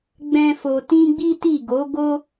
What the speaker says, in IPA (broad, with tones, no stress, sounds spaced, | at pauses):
ɡ͡b ɛ̃˦ f o˧ t ĩ˦ ɡ͡b i˦ t i˦˨ ɡ o˨˦ ɡ o˦